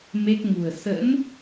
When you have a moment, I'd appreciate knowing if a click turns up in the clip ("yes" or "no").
no